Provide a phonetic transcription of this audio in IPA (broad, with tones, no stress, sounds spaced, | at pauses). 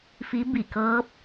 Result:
f i˧˥ b i˧˩ k ɤː˧˥ p̚